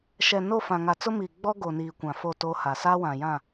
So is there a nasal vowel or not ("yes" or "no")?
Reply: yes